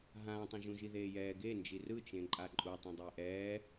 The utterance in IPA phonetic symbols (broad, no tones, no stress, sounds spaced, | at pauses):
ɦ ãː tˤ ũ ʒ ũ ʒ i ð eː j ɛː ɡ e n d͡ʒ i r ɯ t͡ʃ ẽ ǃʼ a ǃʼ u tˤ ɛ̃ dˤ eː ʔ ɛː